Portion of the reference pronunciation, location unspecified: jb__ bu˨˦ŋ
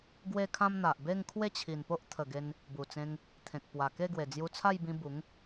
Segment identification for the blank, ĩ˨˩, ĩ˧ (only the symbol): ĩ˧